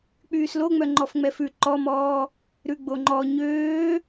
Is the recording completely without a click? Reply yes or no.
no